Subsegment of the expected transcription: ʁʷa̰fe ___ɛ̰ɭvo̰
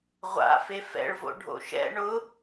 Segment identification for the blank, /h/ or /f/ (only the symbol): f